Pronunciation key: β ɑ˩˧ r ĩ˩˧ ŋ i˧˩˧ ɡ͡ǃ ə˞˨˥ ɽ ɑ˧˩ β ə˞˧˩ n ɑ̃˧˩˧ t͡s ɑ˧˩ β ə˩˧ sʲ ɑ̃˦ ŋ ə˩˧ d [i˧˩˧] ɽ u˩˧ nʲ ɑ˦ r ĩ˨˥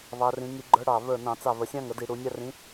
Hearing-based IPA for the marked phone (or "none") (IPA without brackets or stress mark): i˧˩˧